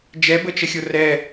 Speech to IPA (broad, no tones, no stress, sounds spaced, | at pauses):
d͡ʒ ɛ b ə t͡ʃ ə xʲ o r ɛ